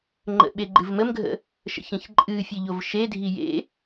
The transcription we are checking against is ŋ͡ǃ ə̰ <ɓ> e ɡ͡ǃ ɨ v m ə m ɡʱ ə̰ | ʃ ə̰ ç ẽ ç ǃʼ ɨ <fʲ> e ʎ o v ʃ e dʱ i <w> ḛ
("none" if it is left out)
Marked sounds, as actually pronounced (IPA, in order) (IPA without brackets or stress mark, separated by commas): ɓ, fʲ, j